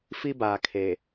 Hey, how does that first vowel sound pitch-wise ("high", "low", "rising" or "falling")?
high